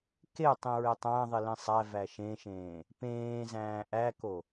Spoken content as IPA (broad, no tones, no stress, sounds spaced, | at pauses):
k e tˤ ĩ ɹ e tˤ æ̃ ðˤ i l ĩ sˤ æ v æ ʃ ẽ ʃ ẽː | p ẽː z æ̃ː ʔ æ k o